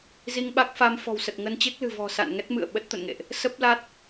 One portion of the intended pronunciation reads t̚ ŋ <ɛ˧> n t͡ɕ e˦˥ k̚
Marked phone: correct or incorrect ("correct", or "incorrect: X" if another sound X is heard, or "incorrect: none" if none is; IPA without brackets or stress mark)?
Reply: incorrect: ə˧